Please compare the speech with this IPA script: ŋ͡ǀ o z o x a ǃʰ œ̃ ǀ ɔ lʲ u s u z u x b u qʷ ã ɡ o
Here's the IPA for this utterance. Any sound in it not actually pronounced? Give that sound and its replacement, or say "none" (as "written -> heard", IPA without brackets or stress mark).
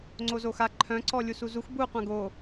none